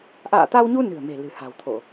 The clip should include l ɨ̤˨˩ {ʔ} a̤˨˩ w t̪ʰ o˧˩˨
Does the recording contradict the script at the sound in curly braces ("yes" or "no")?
yes